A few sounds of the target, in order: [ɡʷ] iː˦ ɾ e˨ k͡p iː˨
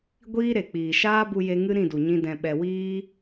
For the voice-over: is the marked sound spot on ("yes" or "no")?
yes